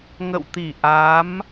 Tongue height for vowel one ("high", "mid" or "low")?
mid